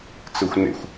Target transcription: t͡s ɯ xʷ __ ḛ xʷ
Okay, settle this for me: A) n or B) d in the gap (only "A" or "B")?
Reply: A